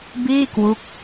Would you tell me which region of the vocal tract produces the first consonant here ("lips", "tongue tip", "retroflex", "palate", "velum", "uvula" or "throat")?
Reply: lips